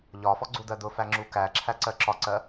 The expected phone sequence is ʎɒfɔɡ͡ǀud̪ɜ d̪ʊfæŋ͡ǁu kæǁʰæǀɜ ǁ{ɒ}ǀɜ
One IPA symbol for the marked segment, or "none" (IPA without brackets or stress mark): ɒ